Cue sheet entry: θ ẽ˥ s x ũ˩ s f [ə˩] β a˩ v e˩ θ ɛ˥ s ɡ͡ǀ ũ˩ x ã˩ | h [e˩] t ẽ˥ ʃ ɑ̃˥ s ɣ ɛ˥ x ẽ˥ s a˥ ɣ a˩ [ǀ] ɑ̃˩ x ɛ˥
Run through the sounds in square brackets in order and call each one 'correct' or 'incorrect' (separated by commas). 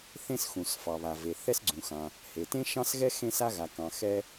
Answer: incorrect, correct, incorrect